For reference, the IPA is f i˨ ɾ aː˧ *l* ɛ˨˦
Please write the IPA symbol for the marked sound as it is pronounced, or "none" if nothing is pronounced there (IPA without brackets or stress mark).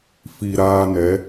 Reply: n